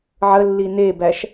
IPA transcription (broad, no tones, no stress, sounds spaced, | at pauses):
ʕ ə lː i n e b æ ʃ